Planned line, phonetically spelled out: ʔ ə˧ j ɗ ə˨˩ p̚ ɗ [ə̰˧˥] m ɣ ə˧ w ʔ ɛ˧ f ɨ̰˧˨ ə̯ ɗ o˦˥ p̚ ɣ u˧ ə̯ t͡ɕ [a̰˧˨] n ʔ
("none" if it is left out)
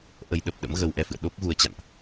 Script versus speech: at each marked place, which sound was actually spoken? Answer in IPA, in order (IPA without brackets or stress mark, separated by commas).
ə̰˧˥, a̰˧˨